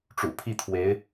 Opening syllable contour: low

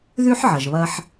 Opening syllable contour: high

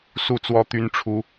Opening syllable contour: falling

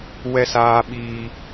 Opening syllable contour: low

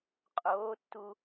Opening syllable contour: rising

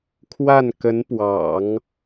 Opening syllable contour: falling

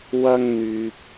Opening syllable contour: high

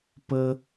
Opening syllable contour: high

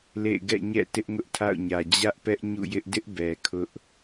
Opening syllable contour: falling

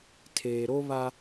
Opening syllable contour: low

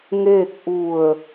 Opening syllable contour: falling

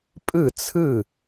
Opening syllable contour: falling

